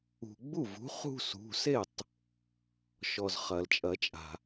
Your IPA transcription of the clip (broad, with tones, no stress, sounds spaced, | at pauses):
ṳ˩ ɡ͡b u˥˩ v ṳ˩˥ χ ṳ˥˧ s ṳ˩˧˩ s e˥˩ tˤ | ʃ ɔ˩ z χ ɐ˩ l t͡ʃʼ ɐ˨˩˦ t͡ʃʼ a̤˩